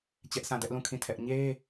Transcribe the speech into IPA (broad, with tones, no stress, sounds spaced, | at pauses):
t͡ɕ ɛ˦ ʔ s ã˦˨ d ɛ˦ ʔ l ũ˦˨ kʰ ĩ˦˨ tʰ ɛ˦ ʔ ɲ e˦